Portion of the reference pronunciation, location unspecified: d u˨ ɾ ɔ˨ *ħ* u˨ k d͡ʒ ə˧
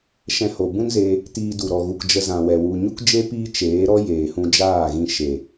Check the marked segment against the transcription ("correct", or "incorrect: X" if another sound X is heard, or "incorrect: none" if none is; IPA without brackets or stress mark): incorrect: ɣ